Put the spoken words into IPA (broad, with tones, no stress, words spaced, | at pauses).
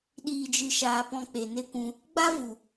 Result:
ɗiː˨d͡ʒɨ˨ʃaː˨ pɔ̃˧k͡pe˨ne˦kʷũ˧ | ɡ͡ba˦vu˨